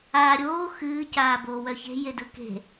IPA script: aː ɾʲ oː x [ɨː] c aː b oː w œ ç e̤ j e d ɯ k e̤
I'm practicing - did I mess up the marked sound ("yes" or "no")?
no